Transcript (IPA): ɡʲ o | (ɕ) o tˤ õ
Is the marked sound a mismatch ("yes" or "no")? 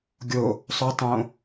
yes